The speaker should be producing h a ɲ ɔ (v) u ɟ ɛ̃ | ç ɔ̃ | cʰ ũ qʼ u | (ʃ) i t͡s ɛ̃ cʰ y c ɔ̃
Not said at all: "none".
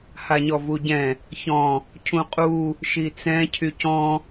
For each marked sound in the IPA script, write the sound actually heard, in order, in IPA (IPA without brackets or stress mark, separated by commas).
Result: v, ʃ